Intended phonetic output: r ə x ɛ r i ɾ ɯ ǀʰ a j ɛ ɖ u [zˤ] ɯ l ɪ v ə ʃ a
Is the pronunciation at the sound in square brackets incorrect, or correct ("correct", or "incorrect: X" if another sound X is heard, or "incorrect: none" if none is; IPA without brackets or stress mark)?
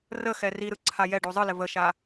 correct